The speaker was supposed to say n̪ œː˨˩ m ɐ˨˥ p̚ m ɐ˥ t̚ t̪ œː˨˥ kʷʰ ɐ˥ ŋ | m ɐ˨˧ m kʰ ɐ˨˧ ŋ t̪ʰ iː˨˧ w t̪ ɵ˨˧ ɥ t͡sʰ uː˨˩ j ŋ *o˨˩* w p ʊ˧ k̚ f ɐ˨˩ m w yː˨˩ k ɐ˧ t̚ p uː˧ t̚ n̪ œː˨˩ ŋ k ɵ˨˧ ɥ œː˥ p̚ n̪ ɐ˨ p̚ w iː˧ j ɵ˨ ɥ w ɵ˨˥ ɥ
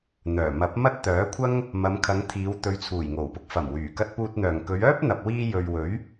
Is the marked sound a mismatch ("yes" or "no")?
no